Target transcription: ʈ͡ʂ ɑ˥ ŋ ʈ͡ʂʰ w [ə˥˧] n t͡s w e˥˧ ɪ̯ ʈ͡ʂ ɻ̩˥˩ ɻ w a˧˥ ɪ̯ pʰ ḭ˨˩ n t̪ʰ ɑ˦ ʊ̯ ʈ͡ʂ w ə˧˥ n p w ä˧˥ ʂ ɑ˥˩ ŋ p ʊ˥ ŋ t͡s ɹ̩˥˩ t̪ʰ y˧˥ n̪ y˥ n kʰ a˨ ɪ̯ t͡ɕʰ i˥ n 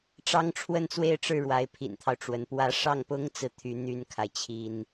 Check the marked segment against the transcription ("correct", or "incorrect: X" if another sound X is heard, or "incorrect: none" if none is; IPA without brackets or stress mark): correct